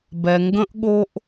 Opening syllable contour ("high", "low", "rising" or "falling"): low